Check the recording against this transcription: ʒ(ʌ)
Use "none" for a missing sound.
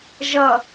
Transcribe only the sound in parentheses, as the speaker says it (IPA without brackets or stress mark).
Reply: ʌ